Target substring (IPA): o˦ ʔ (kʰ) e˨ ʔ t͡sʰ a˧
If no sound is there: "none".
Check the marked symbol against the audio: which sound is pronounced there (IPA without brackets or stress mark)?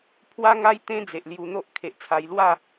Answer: kʰ